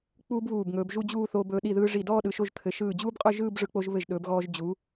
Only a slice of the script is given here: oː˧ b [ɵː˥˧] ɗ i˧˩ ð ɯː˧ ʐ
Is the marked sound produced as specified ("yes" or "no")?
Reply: no